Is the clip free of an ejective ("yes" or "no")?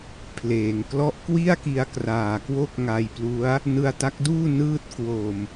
yes